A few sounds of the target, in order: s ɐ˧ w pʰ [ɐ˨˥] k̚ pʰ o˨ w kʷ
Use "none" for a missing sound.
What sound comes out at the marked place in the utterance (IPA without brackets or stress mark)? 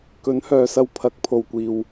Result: ɐ˨˥